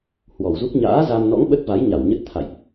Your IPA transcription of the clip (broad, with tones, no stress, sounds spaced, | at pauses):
h w ɔ˨˩ w z u˦˥ k̚ ɲ a̰ː˧˥ z a˧ m n ɔ̰˧˥ ŋ ɓ ə˦˥ t̚ v a˨˦ j ɲ a˧˩ w ɲ ə˦˥ t̚ t̪ʰ a̰˧˨ j ʔ